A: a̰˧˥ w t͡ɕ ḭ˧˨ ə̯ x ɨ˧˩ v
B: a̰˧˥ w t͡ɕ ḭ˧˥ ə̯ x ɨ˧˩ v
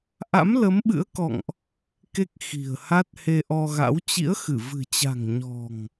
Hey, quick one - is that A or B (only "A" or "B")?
B